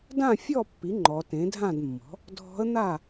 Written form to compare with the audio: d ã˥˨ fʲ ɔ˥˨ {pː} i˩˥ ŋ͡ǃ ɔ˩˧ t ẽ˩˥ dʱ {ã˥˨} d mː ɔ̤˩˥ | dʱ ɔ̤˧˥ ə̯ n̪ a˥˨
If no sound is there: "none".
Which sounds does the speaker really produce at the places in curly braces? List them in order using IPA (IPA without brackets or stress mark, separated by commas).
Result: pː, ã˥˨